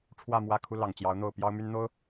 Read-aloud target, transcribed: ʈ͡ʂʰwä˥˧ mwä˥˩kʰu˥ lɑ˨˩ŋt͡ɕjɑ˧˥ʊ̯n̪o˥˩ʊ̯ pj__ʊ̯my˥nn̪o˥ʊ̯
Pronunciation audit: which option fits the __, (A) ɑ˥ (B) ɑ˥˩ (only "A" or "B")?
A